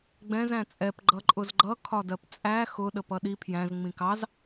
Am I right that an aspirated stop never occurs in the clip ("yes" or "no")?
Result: no